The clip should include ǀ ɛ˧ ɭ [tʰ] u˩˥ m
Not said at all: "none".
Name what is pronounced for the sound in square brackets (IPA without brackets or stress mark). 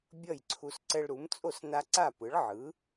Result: ɾ